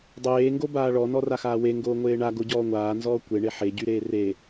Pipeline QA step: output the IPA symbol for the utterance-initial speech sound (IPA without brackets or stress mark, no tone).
dˤ